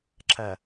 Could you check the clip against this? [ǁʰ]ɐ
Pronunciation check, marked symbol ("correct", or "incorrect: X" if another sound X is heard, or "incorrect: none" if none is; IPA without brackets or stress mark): correct